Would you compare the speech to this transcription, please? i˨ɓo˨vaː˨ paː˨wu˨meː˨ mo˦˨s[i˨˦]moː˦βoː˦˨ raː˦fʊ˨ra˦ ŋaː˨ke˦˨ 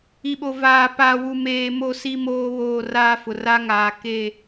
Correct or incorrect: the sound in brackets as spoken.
incorrect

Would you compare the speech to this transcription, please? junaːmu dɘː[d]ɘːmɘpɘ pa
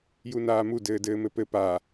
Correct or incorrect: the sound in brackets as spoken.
correct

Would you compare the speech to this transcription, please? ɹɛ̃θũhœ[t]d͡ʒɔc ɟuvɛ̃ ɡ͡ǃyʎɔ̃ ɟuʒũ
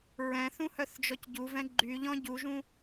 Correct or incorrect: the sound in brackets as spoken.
incorrect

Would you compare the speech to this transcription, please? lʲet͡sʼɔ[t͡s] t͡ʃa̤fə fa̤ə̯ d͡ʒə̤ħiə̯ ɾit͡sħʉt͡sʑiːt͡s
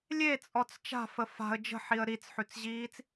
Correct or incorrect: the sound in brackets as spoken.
correct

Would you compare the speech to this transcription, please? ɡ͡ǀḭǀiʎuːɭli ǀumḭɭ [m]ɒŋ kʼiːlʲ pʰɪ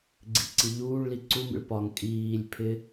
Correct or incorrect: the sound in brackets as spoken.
incorrect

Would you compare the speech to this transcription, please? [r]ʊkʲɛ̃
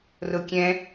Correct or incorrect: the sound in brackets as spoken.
correct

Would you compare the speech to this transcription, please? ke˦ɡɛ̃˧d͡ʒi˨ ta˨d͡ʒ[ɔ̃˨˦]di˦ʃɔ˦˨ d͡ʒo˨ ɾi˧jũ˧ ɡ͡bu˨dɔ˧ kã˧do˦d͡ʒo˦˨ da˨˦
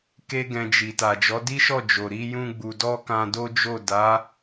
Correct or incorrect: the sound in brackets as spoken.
incorrect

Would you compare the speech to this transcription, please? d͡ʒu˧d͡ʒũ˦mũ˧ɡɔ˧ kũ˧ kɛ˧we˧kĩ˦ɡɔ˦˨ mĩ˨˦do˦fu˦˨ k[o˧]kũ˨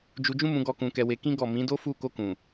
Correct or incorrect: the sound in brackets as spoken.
correct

